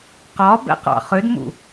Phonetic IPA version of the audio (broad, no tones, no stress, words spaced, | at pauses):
qɒbɛ̰qɑ̰ χʏdmṵ